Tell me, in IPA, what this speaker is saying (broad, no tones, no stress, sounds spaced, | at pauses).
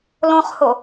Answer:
l õ χ h o